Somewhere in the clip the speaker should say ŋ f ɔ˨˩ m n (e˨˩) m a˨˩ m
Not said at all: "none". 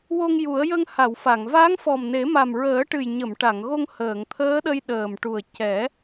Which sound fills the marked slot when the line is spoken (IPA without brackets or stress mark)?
e˨˩˦